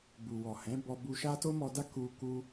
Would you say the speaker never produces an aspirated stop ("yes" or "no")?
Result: yes